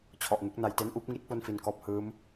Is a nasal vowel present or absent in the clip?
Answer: absent